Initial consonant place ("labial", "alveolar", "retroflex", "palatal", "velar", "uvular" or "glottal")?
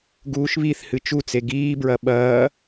velar